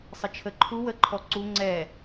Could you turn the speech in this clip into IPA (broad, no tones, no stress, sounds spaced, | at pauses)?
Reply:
sˤ ə t͡ʃʰ ə ǃʰ u w ə ǃʰ ɔ ǀ u ŋ͡ǀ ɛ